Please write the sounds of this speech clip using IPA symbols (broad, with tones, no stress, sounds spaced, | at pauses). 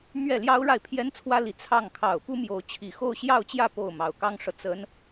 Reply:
m ɥ ɛ˥˩ l j ɑ˥ ʊ̯ ɻ a˥˩ ɪ̯ pʰ j ɛ˥ n t͡sʰ w ä˥ l i˧˥ t͡sʰ ɑ˥˩ ŋ kʰ ɑ˨˩ ʊ̯ p u˥ m j o˧˥ ʊ̯ t͡ɕʰ i˨˩ x o˥˧ ʊ̯ ɕ j ɑ˥˧ ʊ̯ t͡ɕ j ä˥˧ p o˥˩ ʊ̯ m ɑ˨˩ ʊ̯ k ɑ˥ ŋ ʂ ɤ˨ t͡s ə˧˥ n